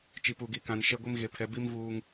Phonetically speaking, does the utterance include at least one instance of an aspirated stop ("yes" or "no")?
yes